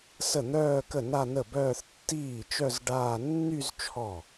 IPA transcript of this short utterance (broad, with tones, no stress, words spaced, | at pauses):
sə˥˩n̪œː˥˧kə˥˩ na˥˧nə˥˩bœː˥˧θ tːiː˥˩t͡ʃœ˥˧z ɖaː˥˧ nːy˥˧z t͡ʃʰɔ˥˩